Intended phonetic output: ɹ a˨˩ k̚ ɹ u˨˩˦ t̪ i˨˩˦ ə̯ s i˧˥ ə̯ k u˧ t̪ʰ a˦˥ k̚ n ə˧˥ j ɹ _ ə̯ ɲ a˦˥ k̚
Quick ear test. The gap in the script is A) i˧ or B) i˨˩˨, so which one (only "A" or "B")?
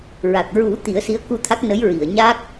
B